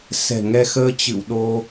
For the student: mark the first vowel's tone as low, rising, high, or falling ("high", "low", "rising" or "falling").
low